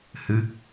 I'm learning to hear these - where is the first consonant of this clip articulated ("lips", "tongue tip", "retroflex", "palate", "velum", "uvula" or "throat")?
throat